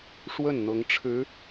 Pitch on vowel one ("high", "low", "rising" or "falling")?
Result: falling